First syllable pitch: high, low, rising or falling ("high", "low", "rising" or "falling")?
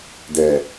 low